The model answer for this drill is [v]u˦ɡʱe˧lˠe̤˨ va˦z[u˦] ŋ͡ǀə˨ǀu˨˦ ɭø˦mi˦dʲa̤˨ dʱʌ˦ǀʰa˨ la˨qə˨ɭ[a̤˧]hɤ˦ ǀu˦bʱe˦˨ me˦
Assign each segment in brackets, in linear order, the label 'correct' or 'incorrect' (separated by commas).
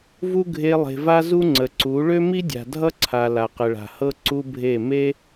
correct, correct, incorrect